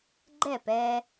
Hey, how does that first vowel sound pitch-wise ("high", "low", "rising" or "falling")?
falling